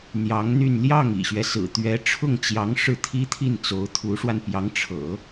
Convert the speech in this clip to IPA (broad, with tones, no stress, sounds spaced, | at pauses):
n̪ j ɑ˧˥ ŋ n̪ y˥˧ n l j ɑ˥˩ ŋ ḭ˨˩ ɕ ɥ ɛ˦ s ɹ̩˨˩ t̪ ɥ ɛ˧˥ ʈ͡ʂʰ ʊ˥˩ ŋ t͡ɕ j ɑ˧˥ ŋ ʂ ɻ̩˥˩ t̪ʰ i˥ t̪ʰ i˥˩ n t͡s o˧˥ ʊ̯ t̪ʰ u˧˥ ʂ w a˧ n p j ɑ˧˥ ŋ ʈ͡ʂʰ ɤ̰˨˩˦